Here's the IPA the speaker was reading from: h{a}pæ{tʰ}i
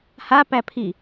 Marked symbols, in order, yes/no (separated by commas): yes, no